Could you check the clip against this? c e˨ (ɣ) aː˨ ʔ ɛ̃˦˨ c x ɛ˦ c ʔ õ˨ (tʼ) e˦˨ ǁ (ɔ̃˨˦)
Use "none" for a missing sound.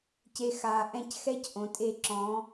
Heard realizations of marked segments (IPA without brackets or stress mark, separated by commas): x, tʼ, ɔ̃˨˦